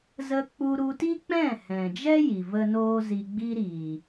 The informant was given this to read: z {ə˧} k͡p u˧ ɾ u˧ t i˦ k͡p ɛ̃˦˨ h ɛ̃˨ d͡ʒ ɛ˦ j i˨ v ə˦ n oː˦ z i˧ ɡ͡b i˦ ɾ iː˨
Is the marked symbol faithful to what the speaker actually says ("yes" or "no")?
yes